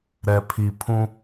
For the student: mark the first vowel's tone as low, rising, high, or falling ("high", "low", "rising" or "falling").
low